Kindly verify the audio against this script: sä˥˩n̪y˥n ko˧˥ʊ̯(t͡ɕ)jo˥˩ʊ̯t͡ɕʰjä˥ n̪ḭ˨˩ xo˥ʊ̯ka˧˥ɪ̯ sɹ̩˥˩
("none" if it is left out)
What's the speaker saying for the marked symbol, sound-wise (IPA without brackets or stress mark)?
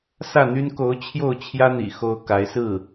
t͡ɕʰ